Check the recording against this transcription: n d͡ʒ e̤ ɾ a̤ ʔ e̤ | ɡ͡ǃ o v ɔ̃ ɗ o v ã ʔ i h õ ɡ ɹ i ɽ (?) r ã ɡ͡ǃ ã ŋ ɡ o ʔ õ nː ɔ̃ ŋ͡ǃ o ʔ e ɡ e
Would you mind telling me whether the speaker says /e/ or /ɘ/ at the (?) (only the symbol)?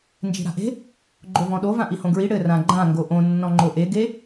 ɘ